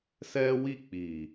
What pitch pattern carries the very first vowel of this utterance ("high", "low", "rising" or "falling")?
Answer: high